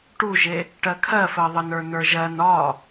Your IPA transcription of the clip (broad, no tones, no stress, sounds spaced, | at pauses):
ʈ u ʒ e | ʈ ɜ kʰ ɜ f ɜ ðˤ ə n ə˞ n ə˞ ʒ ɜ n ɒ